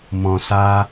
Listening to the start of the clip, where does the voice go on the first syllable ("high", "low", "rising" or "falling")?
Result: low